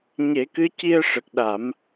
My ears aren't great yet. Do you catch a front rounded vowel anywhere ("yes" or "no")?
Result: no